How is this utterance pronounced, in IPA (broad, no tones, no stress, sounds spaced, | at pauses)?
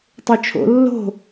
tˤ ø t͡ʃʰ o̰ lː o̤